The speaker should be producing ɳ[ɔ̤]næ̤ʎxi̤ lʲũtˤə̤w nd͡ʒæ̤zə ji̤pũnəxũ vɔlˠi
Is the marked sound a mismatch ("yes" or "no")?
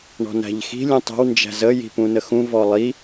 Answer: no